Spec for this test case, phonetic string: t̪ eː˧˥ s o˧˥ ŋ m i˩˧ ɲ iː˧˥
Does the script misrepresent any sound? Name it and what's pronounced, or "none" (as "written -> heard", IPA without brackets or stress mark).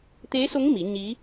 none